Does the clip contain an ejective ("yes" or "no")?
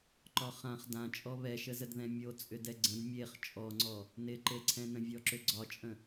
yes